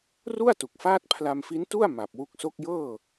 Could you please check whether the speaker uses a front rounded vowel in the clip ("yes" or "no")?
no